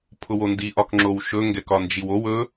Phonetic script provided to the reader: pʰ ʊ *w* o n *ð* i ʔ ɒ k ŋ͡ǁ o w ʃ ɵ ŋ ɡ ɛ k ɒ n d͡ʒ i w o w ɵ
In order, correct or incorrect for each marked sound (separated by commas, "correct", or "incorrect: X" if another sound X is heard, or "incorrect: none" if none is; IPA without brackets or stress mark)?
correct, incorrect: d